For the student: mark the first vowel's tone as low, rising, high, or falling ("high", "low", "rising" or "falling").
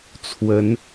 rising